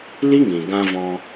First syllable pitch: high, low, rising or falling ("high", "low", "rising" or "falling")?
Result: high